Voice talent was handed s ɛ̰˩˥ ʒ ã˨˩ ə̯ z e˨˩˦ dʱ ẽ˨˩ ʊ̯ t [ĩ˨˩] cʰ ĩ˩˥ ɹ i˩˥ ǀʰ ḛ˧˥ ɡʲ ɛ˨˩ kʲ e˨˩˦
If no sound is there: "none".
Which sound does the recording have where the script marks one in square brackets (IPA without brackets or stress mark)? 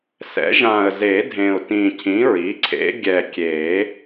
ĩ˨˩